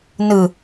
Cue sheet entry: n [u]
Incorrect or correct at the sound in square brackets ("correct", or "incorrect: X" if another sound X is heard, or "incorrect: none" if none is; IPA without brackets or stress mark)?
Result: incorrect: ɯ